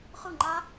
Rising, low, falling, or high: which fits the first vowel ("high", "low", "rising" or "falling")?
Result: falling